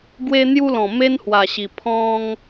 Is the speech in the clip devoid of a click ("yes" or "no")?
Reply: yes